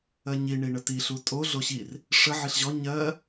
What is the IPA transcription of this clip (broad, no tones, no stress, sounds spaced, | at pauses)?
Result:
ɜ ɲ i ɳ i ɳ ə t i ɬ u tʼ o ɮ o ɕ i r | ʂ ə ʕ i ɬ ʑ ɔ ɲ ɜ